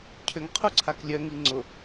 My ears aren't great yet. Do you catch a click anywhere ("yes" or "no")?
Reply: yes